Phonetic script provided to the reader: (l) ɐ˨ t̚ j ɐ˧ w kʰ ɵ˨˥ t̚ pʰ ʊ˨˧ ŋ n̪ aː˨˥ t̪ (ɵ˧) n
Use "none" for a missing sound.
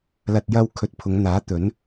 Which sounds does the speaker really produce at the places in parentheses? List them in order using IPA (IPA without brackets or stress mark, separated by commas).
l, ɵ˨˥